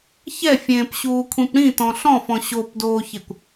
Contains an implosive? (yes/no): no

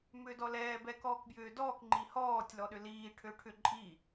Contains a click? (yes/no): yes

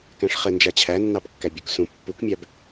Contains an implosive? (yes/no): no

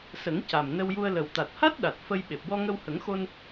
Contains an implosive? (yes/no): yes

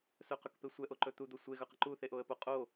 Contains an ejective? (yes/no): yes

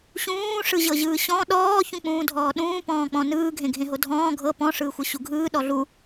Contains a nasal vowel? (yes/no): yes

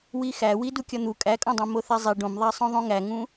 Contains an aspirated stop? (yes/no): no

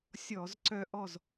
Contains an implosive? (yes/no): no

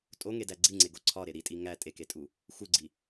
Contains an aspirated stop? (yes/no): yes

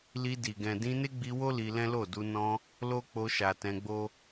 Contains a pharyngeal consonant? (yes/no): no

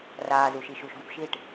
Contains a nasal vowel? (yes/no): no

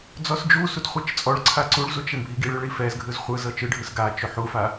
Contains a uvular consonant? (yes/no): yes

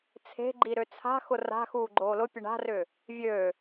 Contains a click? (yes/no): yes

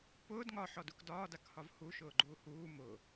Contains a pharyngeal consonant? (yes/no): yes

